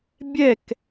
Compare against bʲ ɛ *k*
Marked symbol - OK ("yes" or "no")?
yes